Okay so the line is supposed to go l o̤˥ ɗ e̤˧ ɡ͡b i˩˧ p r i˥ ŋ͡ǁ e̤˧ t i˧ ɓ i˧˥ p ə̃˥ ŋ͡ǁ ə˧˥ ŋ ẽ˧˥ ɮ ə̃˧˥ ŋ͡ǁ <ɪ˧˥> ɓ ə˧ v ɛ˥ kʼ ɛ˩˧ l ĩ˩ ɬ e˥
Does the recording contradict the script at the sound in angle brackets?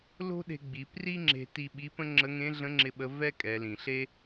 yes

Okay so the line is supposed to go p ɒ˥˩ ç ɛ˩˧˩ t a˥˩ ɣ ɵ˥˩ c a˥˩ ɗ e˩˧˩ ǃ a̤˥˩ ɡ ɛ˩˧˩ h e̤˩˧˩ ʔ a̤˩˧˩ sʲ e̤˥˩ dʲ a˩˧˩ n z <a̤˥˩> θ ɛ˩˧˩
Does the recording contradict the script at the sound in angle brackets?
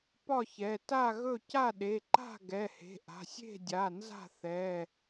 no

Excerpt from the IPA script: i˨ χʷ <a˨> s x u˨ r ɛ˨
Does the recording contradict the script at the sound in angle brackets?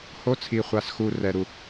no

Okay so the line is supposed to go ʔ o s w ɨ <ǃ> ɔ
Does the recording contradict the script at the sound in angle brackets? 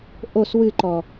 no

